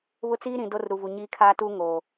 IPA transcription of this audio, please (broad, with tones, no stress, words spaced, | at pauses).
βʊ˦ t͡siː˦ ɾĩ˨ do˦rɾu˨vu˨ɲiː˦ kʰaː˦tuː˦ ŋoː˨